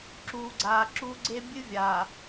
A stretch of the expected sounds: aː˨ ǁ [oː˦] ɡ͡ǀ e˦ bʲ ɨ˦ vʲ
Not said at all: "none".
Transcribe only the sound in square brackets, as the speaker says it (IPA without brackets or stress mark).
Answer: uː˦